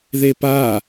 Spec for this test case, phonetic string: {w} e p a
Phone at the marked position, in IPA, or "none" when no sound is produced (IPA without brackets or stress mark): ð